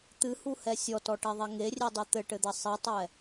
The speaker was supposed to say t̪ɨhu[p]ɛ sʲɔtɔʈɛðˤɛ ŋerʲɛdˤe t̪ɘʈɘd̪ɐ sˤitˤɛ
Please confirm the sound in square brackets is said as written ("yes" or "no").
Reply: no